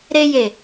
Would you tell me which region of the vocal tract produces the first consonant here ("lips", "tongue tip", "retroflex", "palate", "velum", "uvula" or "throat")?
tongue tip